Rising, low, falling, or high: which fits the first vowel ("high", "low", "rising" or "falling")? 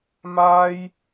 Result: high